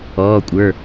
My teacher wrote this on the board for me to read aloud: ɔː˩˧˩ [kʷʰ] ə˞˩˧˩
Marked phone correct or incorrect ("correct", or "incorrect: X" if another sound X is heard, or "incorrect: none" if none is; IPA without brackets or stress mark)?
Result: incorrect: kʷʼ